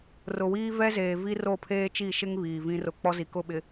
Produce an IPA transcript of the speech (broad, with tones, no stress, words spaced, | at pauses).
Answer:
rʊ˨wiː˦ vɛ˦zeː˨ vi˦ro˦˨ pʰeː˦t͡ʃi˦˨ʃɪ˦ŋ βiː˨vĩ˦rʊ˦˨ k͡pɔ˦zi˨kʊ˦˨ ɓɪ˨